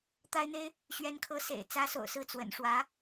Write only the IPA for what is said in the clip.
t̪a˥ɪ̯n̪e˥ɪ̯ | ɕɥɛ˥nkʰɤ˥ sḛ˨˩ɪ̯ t͡sä˥so̰˨˩ʊ̯sɹ̩˥˩ t͡swə̰˨˩nʂwä˧˥

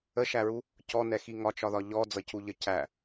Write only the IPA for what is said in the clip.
əʃæɹu | cɔnɛxi ŋɒt͡ʃɒðɒ ʎɔd͡zʌcuʎə cæ

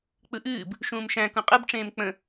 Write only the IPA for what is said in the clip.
k͡pɯʔɨːb | ʃũːmʃæ̃ kũqʼɯb ʈ͡ʂẽːmk͡pə̃

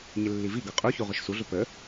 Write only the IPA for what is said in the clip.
ɲɪlːiviɡʌ qʼuçu ʁʊʃsuɮʊ pə

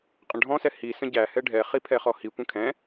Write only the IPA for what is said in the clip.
qʼə̃ɖʱɔ̃sɛ hi sə̃ɟæhɛ ɖʱɛχi pʰɛχɔhi kʷə̃kʰɛ̃

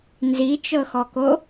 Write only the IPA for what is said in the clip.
nzit͡ʃɤxɔko

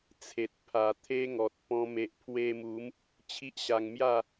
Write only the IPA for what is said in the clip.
t͡sʰe˨t̚pʰa˨˩t̪ʰe˦ŋɔ˨t̚ pɔ̃˧ me˨ʔpʰwe˧mu˨˦m | t͡ɕʰi˦ʔɕa˧ŋmja˥˧

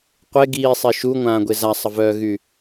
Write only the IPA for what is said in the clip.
qʷe ɡiːsˤe ʃuŋʷãːɡʷe zasˤəvœːɣy

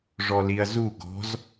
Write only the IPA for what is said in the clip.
ʐɔliɐ̯zu ɡɔ̤z

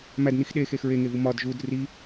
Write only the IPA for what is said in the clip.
mædnix ɗexex ɹeŋevu mɒd ʒud ri

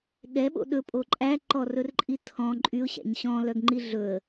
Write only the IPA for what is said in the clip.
ɠɛɓo̰ ɗɵpʼo ǃʼæǃɔrɵrǃʼi tʰɔ̃ ǃʼyʊ̯ɕæ̰ɲ ɕɔ̃lœɡŋ͡ǃi ɮɵə̯

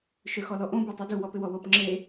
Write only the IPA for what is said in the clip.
ʃøxɔlɔʔõ betˤudu wɔpɪwɔwop ŋ͡ǁe

